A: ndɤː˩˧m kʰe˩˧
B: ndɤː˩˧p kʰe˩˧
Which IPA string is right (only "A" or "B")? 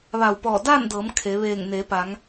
A